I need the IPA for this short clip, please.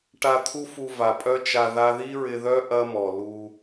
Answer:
ʈ a˧ t̪ʰ u˦ f u˧ v a˨ pʼ œ˦ t͡ʃ a˧ ð a˧ ð i˦ ɹ ɪ˧ ð œ˦ ʔ ɐ˦ m ɔ˨ l u˧

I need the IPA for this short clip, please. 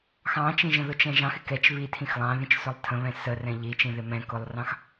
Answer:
x ɑ̃ t͡ʃ ĩ ʒ ə̃ ð ʊ t͡ʃ ɛ̃ ʒ ɑ̃ x ɪ k ɛ t͡ʃ β i tʰ ĩ x lˠ ɑ̃ ð ĩ t͡ʃ s ʊ lˠ tʰ ə̃ β ɛ̃ s ə r ɛ̃ ʎ i t͡ʃ ĩ ð ɪ m ɛ̃ k ʊ lˠ r ɑ̃ x

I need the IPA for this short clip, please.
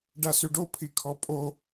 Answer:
ɖ a s y ɖ o pʰ i kʰ ɔ pʼ o

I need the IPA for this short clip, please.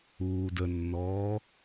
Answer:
uː d ə nː ɔː

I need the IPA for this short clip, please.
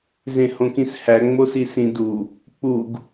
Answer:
z ẽ h õ k ĩ s h æ ŋ͡m o s i s ĩ d u | k͡p u ɡ

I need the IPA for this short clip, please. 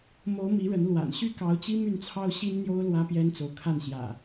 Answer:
m o˨˦ ʊ̯ m i˨˦ ɻ ə˨˦ n l w a̰˨˩ n ɕ y˥˨ k ɑ˨˦ ʊ̯ t͡ɕ i˦ m y˥˨ n t͡sʰ ɑ˦ ʊ̯ ɕ i˦ n n̪ j o˦ ʊ̯ l w ä˦ p j ɛ˦ n t͡s o˨ ʊ̯ kʰ a˥˨ n ɕ j ä̰˨˩

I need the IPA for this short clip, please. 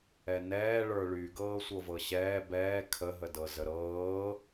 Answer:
ɛ n ɛː ɭ ə˞ ɭ y ɡ ɤː sʷ ɤ v ɤ ɕ ɛː b ɛː kʰ ə ɦ ə d ɤ z ə ɾ ɤː

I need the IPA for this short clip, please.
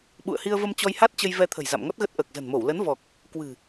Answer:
ɓ ṵ˧˨ ə̯ h i˧ ə̯ v ə˧ m t͡ɕ ɔ˧ j h a˦˥ t̚ t͡ɕ ə˧ j v ɛ˧ t̪ʰ ə̤˨˩ j z a̰˧˨ m ŋ ɔ˦˥ t̚ ɣ ə˦˥ t̚ ʔ əː˨˩ k̚ z ə̤˨˩ n m o˧˩ w l ə˨˦ n v ɔ˨˩ k̚ | k w ɨ̤˨˩

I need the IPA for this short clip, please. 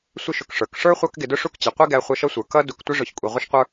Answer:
sʷ ɪ˦ ʃ ʊ˨ k ʂ ə˞˩ k ʂ ə˞˥ χʷ ɑ˦ k ɡ ɪ˨ d ʊ˥ ʂ u˥ k t͡ɕ i˩ qʷ i˥ ɡ æ˨ χʷ ʌ˨ ʃ ʌ˦ sʷ ə˞˩ k ʌ˦ d u˨ k tʷ ɪ˦ ʐ ʊ˨ ç kʷʼ i˩ ʁʷ ɪ˦ ʃ qʷ ə˞˦

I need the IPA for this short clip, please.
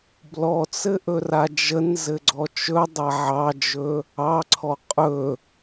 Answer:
b l ɔ t͡s ɘ ʔ ɵ r a d͡ʒ ə n z ɘ ɡ͡ǀ ɔ t͡ʃ ɵ dˤ a ʕ ɑ d͡ʒ ɵ | ɑ ǀʰ ɔ qʼ ɵ

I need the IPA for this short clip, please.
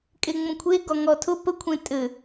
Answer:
kʼ e ŋ͡m ə̃ kʷʰ e ɡ ɔ ŋ ɔ tʰ ʊ p ə kʷʰ ẽ tʼ ɘ

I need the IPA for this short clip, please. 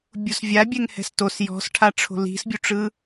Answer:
bʲ u s vʲ a bʲ ɛ ŋ h ɛ̤ s t o s j ɔ̤ s ʈʰ a ʈ͡ʂʰ o̤ l i̤ s bʲ u ʈ͡ʂ ɯ

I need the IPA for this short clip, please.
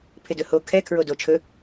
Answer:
pʰ ɪ d ɵ h o kʰ ɛ kʰ ɹ o d o t͡ʃʰ ɵ

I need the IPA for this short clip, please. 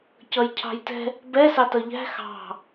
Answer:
c ʌ j cʰ ɑ̤ j t ɛ̤ | b ɛ s ɑ t ʌ ʎ æ̤ x ɑ̤

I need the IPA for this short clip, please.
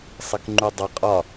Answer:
sˤ ɪ k ŋ͡ǃ u dˤ ʊ qʼ ɒ

